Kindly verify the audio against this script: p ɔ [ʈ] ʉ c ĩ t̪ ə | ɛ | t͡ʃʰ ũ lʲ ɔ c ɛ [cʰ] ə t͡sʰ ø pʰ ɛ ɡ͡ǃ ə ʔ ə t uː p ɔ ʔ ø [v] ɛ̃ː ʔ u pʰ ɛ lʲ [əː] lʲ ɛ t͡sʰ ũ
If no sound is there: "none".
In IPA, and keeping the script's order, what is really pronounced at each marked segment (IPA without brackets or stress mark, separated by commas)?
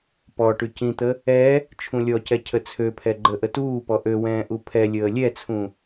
ʈ, cʰ, w, əː